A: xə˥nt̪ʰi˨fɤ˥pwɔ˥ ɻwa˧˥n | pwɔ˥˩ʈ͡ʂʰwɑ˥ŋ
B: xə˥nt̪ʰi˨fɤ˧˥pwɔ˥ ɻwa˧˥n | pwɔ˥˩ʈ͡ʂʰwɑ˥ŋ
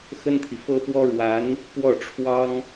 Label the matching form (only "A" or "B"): A